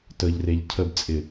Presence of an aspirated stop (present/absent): present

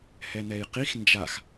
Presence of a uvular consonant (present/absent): present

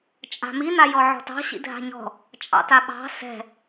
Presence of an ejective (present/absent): present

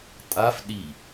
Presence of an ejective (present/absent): present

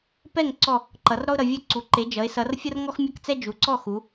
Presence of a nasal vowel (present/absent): absent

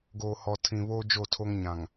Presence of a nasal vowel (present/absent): present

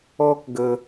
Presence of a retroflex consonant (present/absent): absent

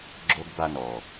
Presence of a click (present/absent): present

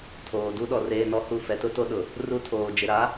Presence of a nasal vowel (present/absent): absent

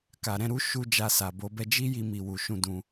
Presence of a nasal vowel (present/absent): present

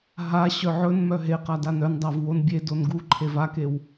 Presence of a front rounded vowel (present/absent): present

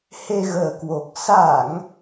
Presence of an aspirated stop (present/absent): absent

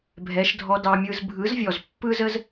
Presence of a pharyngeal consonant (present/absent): absent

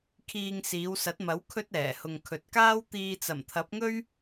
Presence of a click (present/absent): absent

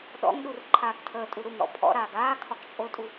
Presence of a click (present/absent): present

